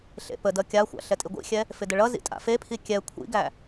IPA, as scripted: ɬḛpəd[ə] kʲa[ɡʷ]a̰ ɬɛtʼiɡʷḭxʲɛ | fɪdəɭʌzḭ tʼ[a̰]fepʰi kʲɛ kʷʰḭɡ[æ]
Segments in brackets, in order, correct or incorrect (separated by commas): incorrect, incorrect, correct, correct